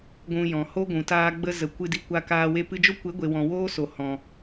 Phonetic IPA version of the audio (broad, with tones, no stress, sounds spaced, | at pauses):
ɡʷ ũ˧ j ɔ̃˨ h o˦ ɡʷ ũ˨ t aː˧ ɡ͡b ə˧ z ə˨ kʷ ɨ˧ d i˧ kʷ a˧ k aː˧ w e˧ p ɨ˧ d͡ʒ o˦ kʷ e˨˦ ɡʷ e˨ w ɔ̃˨ w oː˦ s o˨ h ɔ̃˨